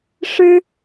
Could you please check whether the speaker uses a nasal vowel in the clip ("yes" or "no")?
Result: no